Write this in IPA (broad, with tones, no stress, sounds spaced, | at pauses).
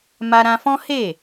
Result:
m a˧ ɾ ã˧ f ɔ̃˦ h e˦˨